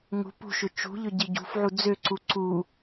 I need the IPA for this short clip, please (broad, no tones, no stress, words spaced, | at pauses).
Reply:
ŋṳ pṳʃʏ t͡ʃṳʎʏ ɟiɟṳfʕu d͡zøǀu ǀu